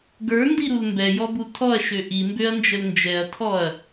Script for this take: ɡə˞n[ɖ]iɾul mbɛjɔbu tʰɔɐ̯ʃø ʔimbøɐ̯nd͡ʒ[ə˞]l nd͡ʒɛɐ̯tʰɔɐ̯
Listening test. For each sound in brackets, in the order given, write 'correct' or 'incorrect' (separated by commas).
incorrect, incorrect